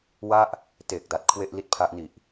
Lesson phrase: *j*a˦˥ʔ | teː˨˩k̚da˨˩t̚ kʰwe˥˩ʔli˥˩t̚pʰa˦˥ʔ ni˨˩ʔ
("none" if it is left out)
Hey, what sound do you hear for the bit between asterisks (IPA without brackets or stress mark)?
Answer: w